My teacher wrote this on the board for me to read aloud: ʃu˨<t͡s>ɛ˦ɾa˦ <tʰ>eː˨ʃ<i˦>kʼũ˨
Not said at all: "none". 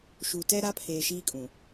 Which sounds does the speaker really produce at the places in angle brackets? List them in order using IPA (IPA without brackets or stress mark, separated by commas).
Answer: t, pʰ, iː˦